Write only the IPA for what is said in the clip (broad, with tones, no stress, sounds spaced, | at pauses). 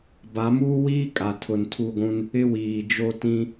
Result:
b a˨˦ m uː˦ w iː˦ kʼ a˨ tʰ ʊ˨ n tʰ u˦˨ ɡʷ ũ˦ n | ɪ˦ w iː˨ d͡ʒ o˦ t ĩ˦